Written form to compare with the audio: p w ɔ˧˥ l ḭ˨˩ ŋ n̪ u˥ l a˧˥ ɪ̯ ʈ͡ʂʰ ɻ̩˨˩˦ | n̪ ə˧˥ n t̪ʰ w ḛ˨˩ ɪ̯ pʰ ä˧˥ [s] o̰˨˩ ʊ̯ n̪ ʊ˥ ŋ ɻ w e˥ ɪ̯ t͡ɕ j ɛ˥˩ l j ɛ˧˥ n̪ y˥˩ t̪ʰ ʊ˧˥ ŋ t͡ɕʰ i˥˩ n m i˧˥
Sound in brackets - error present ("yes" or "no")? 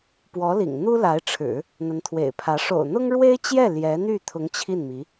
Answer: yes